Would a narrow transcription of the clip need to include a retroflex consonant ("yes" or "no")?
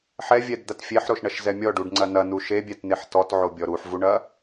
yes